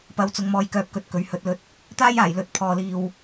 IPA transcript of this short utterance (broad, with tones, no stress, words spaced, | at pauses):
pɐ˨˥wt͡sʊ˨˧ŋmɔː˨jkœː˨˥p̚ kɵ˧t̚kɵ˨˥ɥ hɵ˨˥t̚lɵ˧t̚ | t̪aː˥j aː˨˩j lɵ˨t̚pʰɔː˨ liː˨w